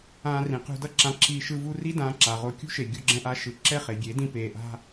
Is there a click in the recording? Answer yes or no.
yes